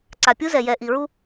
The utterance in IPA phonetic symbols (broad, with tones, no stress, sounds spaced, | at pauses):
ǀ a˨ pʲ u˦ z ɛ˨ j ɛ˨ ʔ i˨ ɹ u˦